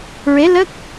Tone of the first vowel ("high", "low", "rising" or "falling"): rising